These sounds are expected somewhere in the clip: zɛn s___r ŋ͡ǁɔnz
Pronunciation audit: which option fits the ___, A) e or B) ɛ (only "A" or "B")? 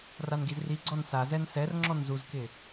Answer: B